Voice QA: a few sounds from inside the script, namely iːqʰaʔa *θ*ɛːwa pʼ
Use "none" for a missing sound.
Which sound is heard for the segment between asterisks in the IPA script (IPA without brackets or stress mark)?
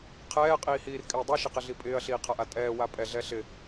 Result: tʼ